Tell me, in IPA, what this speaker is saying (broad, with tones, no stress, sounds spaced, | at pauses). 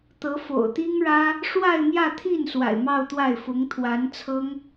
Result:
t̪ ɤ˧˥ f o̰˨˩ ʊ̯ t̪ i˥ ŋ ɻ ä˥ | ʂ w a˥˧ ɪ̯ m j ä˥˧ t̪ʰ i˥˩ n s w a̰˨˩ ɪ̯ m ɑ˥˧ ʊ̯ t̪ w a˥˩ ɪ̯ f ʊ˧˥ ŋ t̪ʰ w a˧˥ n t͡sʰ ɤ˥ ŋ